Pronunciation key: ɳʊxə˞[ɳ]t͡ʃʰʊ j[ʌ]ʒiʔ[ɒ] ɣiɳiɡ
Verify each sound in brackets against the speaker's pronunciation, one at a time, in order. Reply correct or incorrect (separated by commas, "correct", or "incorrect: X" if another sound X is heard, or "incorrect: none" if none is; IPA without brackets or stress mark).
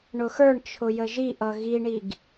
correct, incorrect: ə, incorrect: ʌ